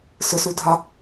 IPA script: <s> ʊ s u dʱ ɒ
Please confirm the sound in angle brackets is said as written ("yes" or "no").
yes